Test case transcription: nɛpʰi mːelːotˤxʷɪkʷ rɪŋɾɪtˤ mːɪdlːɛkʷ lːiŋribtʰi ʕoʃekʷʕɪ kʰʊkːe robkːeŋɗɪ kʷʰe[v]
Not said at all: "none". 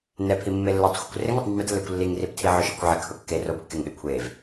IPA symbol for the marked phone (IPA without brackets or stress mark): v